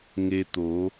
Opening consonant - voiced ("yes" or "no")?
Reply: yes